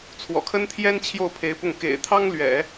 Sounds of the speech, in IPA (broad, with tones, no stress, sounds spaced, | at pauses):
t͡sʰ w ɔ̰˨˩ kʰ ə˥ n t̪ʰ j ɛ˥ n t͡ɕʰ j o˥˩ ʊ̯ pʰ e˧˥ ɪ̯ p ʊ˥˩ ŋ k ḛ˨˩ ɪ̯ t̪ʰ ɑ˥ ŋ l ɥ ɛ̰˨˩˦